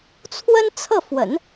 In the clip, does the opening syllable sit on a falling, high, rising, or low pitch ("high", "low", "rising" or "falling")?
high